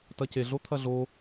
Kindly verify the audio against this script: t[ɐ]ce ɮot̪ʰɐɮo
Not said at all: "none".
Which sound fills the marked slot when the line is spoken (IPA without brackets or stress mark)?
ɐ